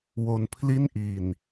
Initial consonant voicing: voiced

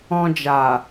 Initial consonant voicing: voiced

